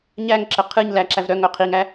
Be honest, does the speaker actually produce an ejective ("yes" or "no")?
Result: no